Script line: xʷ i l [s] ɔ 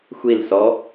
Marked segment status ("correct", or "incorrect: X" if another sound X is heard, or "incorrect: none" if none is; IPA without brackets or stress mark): correct